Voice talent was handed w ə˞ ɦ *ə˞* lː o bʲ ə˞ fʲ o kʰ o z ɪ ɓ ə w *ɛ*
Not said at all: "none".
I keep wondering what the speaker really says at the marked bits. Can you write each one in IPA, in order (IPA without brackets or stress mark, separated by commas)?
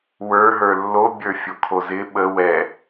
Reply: ə˞, ɛ